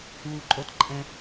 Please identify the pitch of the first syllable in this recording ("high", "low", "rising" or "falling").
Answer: low